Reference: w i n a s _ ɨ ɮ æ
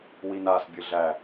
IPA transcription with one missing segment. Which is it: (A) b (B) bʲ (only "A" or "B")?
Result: B